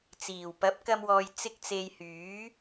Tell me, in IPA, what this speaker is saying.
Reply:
t͡siː˨˩w pɐ˨˥p̚kɐ˧mwɔː˨j t͡sɪ˧k̚t͡se˨j hyː˨˥

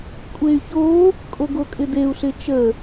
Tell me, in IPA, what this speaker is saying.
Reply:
kʷʼey̯ço | kʼoɡokʼɪd̪eu̯ ɬɪt͡ʃə

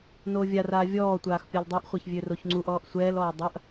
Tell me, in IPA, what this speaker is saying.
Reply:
noːvʲaraː vʲɔːtʷaːx pʲɒldˤøʔχʷɛç vʲøroçŋ͡ǀuʔɔːʔ sʷɛːlɔː dˤɐʔ

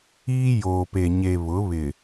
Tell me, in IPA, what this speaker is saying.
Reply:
iː˦ joː˨pe˨ɲe˨ βʊ˨˦ βɪ˨

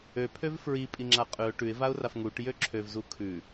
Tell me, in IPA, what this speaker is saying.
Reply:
øpʰøv fɹipʼiŋ͡ǁa qʼʉʊ̯ ʈʉɪ̯vaʊ̯raf ŋuʈjø ǁʰøvzu kʰʉ

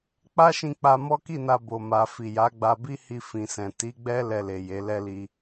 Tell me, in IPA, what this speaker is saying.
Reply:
k͡pa˦ʃĩ˧k͡pa˧ mɔ˦ki˦˨na˧ bo˨ma˨ fi˨ja˨˦ɡ͡ba˧bi˦ hi˧ fĩ˨sɛ̃˨ ti˨˦ɡ͡bɛ˦ lɛ˧le˨ je˨˦lɛ˦li˧

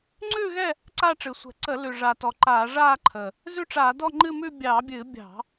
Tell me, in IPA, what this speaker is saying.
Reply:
ŋ͡ǀʉː˥˧ɣɛ˥˧ | ǀa˥˧ʈ͡ʂɨ˨˩sʷɛ̤˧˩˧ ǀə˧˩˧lʉ˨˩ʐa˨˩ tɔ˨˩ǃaː˧˩˧ʐaː˥˧ǃʰə˨˩ | zʉ˥˧ʈ͡ʂaː˧˩˧ dɔ˥˧ŋ͡ǃɨ˥˧mʉ˥˧ bʲɑ˧˩˧bʲɨː˧˩˧ bʲɑ̤˧˩˧

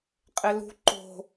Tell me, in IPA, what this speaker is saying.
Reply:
qʼelṳ ǃo̤

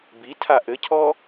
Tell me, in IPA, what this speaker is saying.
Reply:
bitʰa ʔɘcʰɔ

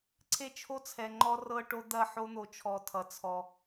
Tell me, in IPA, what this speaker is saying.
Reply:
ǀʰe˦t͡ʃʰo˦t͡sʰɛ˨ ŋ͡ǃɔ˦rɤ˦ʈo˦ d̪ɐ˦˨ ħo˦n̪o˨t͡ʃʰɔ˨tʰʌ˨ t͡sʰɔ˦

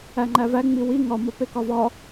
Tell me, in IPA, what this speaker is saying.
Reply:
æŋ͡ǃævæ ŋ͡miwi ŋɒ mɒpekɒvɒ

